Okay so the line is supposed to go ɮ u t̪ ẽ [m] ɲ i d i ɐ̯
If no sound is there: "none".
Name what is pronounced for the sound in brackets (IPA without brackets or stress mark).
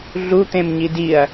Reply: m